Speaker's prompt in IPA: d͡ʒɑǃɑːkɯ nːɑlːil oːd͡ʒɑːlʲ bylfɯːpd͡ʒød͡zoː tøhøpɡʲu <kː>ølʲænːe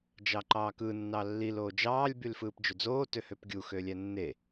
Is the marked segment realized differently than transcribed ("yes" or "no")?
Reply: yes